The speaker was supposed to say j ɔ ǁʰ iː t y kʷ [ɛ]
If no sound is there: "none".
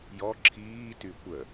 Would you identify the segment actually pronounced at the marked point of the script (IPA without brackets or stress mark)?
ə